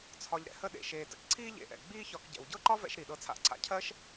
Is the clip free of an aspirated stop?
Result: no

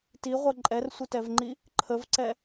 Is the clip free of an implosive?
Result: yes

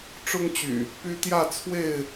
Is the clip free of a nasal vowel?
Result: yes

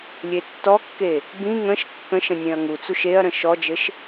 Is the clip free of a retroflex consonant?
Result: yes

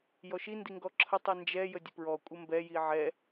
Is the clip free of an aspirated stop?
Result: no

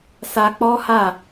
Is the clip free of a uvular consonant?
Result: yes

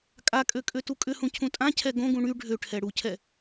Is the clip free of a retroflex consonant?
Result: no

